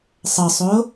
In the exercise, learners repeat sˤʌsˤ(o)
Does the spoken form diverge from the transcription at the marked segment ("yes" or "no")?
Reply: no